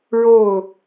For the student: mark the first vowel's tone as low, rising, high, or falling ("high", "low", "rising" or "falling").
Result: falling